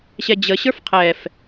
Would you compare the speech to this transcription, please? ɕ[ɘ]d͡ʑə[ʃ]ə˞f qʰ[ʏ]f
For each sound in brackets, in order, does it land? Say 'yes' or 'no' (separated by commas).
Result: no, no, no